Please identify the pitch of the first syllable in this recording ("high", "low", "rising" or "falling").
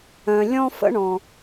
low